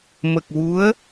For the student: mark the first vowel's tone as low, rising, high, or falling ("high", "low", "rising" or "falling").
low